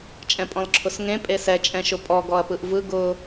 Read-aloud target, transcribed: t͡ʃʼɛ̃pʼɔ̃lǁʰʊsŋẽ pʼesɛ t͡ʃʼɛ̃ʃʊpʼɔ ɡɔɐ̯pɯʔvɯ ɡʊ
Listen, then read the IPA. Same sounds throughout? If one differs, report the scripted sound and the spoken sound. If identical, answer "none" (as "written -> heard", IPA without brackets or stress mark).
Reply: none